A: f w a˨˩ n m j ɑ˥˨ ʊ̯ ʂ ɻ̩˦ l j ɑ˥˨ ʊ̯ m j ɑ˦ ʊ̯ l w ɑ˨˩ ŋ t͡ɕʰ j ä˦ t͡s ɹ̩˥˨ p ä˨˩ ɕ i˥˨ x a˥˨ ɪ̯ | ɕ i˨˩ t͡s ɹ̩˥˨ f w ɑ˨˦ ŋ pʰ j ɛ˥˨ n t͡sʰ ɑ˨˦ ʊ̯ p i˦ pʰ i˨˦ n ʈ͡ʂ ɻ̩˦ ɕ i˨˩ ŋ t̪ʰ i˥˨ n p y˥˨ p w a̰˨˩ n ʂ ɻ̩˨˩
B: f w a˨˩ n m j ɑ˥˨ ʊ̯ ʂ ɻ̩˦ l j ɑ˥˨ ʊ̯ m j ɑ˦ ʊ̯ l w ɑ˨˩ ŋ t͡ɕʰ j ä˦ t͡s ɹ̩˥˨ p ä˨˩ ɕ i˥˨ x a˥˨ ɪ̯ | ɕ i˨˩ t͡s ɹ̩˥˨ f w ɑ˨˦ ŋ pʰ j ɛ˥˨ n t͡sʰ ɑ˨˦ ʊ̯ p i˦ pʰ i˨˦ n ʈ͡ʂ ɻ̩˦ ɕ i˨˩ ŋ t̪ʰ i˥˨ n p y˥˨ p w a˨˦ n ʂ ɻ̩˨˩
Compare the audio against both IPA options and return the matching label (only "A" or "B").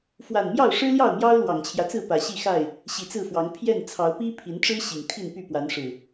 B